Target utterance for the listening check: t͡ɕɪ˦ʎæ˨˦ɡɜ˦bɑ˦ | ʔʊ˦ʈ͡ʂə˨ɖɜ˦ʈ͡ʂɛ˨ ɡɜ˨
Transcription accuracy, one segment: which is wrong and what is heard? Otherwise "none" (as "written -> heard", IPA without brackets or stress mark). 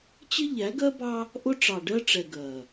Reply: ə˨ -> ɑ˨